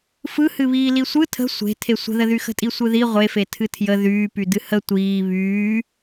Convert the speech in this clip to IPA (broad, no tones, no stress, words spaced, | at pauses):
fɯhɨβiː lisʷɯ tʰə̤ sʷe̤ tʰesʷə̤ðəðy xə̤tʼisʷɯði ʁʷefe tʰɨtʰjə ðyːpy dɨhə tʷiː βyː